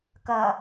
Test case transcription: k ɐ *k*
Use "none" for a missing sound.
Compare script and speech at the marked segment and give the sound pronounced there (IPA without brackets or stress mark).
none